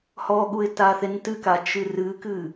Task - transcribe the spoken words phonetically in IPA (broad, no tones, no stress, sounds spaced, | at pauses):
h ɔ ɠ u ɪ̯ t a θ e n t ɨ k a t͡ʃ ɨ r ɨ k ɨ